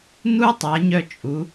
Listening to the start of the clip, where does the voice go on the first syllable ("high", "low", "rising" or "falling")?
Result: high